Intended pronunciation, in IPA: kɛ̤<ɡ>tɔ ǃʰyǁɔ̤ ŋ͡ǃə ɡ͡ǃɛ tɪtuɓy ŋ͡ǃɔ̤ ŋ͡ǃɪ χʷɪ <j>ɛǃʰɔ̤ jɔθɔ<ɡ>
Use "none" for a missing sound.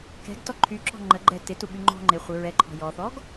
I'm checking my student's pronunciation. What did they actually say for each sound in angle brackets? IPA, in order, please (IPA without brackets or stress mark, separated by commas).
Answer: ɡ, ɹ, ɡ